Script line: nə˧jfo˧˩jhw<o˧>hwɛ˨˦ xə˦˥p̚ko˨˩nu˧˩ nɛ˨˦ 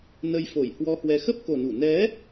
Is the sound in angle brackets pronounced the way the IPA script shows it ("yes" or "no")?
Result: no